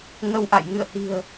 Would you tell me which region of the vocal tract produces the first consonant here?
velum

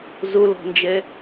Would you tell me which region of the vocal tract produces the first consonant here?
tongue tip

